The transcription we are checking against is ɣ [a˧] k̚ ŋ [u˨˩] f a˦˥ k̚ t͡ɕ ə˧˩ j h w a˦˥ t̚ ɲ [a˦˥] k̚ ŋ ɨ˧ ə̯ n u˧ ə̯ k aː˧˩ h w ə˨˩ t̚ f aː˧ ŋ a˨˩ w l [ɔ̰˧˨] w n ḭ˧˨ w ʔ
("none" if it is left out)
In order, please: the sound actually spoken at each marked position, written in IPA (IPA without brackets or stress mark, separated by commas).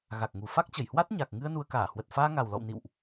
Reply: a˨˩, u˨˩, a˨˩, ɔ̰˧˨